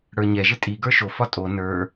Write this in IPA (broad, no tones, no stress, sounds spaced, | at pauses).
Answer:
ɽ ə˞ ɲ ɛ ʒ ɪ tʼ i ɡ ə˞ ʃ o f ɒ tʼ o n ə˞